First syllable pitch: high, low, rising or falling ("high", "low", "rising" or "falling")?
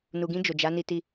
low